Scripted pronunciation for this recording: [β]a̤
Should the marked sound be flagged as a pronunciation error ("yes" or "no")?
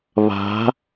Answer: no